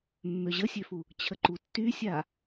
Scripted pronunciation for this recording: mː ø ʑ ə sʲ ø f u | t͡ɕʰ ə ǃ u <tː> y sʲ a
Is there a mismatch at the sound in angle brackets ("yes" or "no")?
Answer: no